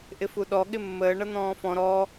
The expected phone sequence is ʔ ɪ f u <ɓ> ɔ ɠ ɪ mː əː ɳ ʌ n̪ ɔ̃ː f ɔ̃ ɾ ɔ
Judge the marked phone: incorrect: ɗ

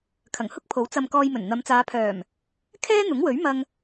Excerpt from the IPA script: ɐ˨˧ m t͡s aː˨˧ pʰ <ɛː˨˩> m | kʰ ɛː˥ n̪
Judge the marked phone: incorrect: œː˨˩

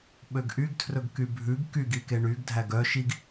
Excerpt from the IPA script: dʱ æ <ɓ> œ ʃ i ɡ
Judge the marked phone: incorrect: ɡ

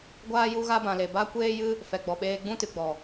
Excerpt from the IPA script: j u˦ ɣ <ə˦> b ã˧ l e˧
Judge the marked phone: incorrect: a˦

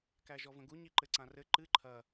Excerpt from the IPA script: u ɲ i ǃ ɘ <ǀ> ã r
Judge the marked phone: correct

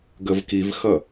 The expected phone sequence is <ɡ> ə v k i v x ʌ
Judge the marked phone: correct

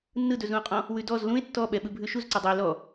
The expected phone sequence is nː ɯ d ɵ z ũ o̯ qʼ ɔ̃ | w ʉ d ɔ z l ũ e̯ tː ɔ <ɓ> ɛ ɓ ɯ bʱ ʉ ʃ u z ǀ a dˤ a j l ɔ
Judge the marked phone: correct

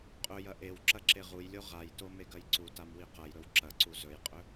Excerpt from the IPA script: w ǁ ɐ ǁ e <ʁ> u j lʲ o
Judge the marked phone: correct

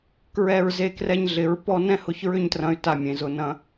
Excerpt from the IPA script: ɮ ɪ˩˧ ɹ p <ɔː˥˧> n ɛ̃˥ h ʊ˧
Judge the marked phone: incorrect: ɔ˥˧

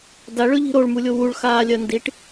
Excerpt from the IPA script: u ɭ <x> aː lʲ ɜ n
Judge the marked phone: correct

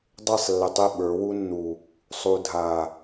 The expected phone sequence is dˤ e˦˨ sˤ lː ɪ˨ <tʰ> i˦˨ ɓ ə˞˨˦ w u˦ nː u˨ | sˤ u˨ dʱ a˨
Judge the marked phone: incorrect: tˤ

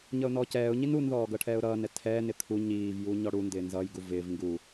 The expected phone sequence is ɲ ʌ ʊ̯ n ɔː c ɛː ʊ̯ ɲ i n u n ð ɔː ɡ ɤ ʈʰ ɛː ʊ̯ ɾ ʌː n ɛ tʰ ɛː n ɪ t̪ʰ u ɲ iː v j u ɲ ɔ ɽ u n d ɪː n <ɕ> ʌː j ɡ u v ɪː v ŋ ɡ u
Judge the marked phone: incorrect: z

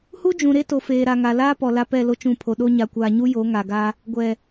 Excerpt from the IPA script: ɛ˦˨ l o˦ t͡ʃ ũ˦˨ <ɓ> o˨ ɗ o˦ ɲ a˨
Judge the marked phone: incorrect: pʰ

